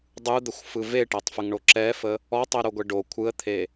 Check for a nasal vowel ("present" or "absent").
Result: absent